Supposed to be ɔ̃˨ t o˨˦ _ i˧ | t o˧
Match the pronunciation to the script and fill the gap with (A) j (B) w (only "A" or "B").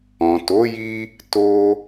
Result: A